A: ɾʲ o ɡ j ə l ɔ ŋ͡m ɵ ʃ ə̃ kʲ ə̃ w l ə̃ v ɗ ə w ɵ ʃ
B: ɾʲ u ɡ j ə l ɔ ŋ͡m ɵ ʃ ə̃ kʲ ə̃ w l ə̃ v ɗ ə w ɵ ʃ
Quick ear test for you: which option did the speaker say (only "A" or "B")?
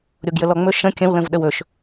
A